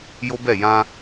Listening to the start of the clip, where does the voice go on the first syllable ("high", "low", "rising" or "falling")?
high